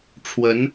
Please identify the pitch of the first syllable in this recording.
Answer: rising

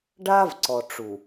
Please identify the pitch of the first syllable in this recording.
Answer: high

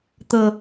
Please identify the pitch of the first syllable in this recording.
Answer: low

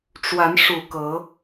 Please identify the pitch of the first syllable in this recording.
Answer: rising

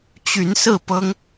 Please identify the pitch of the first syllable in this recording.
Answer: rising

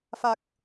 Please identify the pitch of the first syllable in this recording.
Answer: low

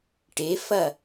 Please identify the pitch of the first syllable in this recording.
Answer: rising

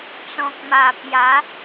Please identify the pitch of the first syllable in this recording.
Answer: low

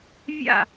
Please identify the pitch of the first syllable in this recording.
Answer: falling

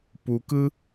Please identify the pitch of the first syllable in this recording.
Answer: low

